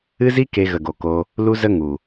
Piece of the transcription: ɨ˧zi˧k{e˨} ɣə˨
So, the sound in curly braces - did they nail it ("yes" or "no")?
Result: yes